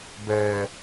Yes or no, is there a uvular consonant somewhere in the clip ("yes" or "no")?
no